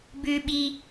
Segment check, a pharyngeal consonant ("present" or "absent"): absent